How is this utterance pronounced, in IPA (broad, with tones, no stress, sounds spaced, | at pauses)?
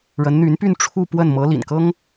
ɻ ə˧˥ n n̪ y˧˥ n p y˥˧ n ʈ͡ʂʰ u˥˧ p w ə˥˩ n m ɤ˧˥ l ḭ˨˩ n k ɤ˥ ŋ